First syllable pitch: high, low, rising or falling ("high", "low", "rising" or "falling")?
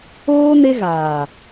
high